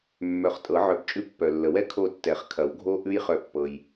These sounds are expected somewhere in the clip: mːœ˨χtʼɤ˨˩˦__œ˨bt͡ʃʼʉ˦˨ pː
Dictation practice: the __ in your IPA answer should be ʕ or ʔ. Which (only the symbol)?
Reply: ʕ